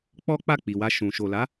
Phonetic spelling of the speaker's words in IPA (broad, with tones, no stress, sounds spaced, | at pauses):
k͡p ɔ˦ k͡p a˦˨ k͡p i˨ w a˧ ʃ ũ˨ ʃ o˨ l a˨˦